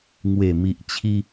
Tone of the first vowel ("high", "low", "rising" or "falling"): low